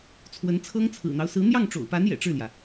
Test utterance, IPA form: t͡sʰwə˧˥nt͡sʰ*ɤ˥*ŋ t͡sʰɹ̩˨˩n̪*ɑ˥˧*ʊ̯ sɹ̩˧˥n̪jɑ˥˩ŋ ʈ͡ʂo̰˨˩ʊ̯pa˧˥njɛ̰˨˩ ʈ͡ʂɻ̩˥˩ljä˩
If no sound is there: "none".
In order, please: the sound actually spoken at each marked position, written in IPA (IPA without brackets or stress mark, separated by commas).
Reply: ɤ˥, ɑ˦